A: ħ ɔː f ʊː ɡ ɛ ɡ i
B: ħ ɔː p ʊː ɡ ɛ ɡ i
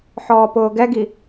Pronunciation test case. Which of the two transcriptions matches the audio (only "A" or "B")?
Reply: B